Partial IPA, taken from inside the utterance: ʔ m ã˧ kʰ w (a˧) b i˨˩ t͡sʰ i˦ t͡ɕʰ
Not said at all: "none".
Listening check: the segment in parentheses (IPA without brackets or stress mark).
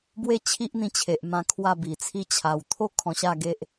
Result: a˥˧